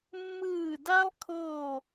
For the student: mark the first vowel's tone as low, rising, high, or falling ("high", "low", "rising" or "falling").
falling